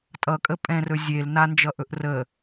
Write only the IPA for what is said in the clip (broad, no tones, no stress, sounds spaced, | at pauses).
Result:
tʼ ʌ kʼ ə pʼ ɛ̃ r ɵ zʲ e l n a n d͡ʒ ʌ ʔ ɵ ʔ r ə